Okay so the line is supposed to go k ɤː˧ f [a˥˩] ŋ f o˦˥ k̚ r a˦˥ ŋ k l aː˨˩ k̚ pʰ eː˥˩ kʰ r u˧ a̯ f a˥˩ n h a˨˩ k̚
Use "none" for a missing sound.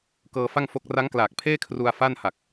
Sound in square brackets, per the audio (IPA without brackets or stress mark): a˥˩